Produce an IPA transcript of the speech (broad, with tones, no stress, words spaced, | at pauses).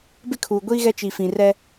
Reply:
bɪ˦kʰuː˨ɡʷiː˦ ɣɛ˦t͡ʃi˨ fĩ˨rɛ˦